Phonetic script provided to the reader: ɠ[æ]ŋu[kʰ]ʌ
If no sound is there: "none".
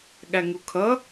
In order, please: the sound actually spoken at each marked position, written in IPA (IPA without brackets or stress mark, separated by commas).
æ, kʰ